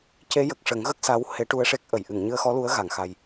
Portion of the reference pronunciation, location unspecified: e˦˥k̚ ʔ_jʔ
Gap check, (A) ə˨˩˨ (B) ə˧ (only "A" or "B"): A